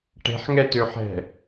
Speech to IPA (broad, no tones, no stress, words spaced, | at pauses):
ʈe̤ħŋɛtøħɛ̤